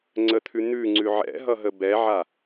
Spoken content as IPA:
ŋ͡ǀ ə t̪ʰ ʉ n̪ ʉ ŋ͡ǀ ʉ ʕ ɛ̰ ɦ ʌ ɦ ə b ɛ ʕ a

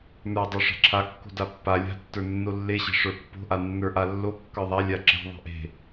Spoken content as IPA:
n ə˞ dˤ o ʂ a̤ ǁʰ a kː o̤ d a pː a lʲ a̤ tː ə˞ nː o lː e ɕ e̤ ʂ ə˞ pː o̤ ʔ a nː ə˞ ʔ a lː o kː ə˞ ðˤ a lʲ a ǁ e̤ ðˤ e̤ ʔ e̤

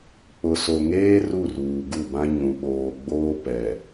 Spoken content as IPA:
k͡p ʊ˨ s o˨ ŋ eː˦ r u˦˨ r uː˨ ɡ u˦˨ b ã˦ ɲ ũ˨ ɓ oː˨ ɡ͡b oː˦ p ɛ˨

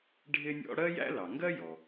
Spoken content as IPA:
ɖʱ ɪ˥ nʲ ɔ̰˥ ɽ ɜ˥ j æ̰˥ l ɑ˩ ŋ ɡ ɜ˥ j ɔ˩

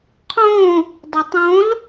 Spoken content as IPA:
qʰ õ | dˤ o tˤ õ l

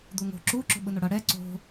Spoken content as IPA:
d̪ u ŋ o̤ ǁ u ǁ o̤ ɓ ɯ n o ɽ ʌ ɽ ɛ ǀ o̤

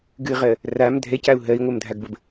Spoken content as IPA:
ɡ ɨ ʁ ɜ | r a m dʱ ɛ c a u̯ ɦ ɜ i̯ ŋʷ ɜ m dʱ a ɡ b ə b

